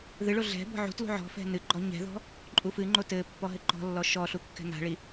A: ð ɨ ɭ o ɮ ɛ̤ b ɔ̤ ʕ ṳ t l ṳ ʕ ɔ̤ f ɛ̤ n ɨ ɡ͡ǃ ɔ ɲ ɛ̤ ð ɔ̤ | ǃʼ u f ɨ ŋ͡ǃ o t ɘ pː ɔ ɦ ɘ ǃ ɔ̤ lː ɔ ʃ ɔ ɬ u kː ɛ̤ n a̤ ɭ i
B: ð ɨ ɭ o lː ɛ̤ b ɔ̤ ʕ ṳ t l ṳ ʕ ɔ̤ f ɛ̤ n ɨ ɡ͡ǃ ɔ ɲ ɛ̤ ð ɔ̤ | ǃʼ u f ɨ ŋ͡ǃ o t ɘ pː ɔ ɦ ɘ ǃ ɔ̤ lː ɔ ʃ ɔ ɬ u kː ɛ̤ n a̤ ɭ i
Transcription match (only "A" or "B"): A